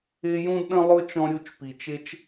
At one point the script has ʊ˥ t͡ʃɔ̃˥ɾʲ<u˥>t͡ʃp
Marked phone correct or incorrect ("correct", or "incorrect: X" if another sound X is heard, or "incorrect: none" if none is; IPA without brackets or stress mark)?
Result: correct